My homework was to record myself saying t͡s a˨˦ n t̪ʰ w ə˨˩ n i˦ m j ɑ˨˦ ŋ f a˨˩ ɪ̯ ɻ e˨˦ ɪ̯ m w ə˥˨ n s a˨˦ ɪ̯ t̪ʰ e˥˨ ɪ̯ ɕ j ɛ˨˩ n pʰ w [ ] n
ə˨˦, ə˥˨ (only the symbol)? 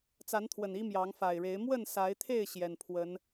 ə˨˦